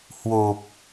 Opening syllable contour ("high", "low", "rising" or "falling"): low